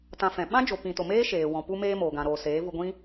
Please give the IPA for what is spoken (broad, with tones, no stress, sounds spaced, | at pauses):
t ã˦ f ɛ̃˧ ɓ ã˦ d͡ʒ o˨ p ĩ˨ t o˨ m eː˦ ʃ eː˨ w ɔ̃˨ p u˦ m eː˦ m oː˨ ɡ ã˧ ɾ oː˧ s eː˨˦ v u˧ ɡʷ ĩ˦